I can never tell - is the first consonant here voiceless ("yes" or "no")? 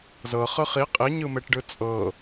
no